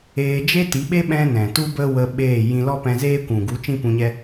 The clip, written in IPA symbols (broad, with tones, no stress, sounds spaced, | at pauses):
eː˧ d͡ʒ e˦ t i˨˦ ɓ e˦ ɓ ɛ̃˦ n ɛ̃˨ t u˦ b ə˦ w ə˧ ɓ eː˦˨ j ĩ˧ l ɔ˦ p ɛ̃˧ z eː˦ kʷ ũ˨ ɡ u˨˦ t͡ʃ ĩ˦ p ũ˧ ɲ ɛ˦